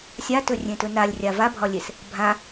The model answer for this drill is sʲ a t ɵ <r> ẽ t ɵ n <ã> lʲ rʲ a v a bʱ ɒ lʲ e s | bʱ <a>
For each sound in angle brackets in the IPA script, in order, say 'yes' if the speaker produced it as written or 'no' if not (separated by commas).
no, no, no